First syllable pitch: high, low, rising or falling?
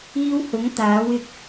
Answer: high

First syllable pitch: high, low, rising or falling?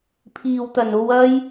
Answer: low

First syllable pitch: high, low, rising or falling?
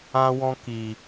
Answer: high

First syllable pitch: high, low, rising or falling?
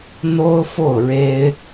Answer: high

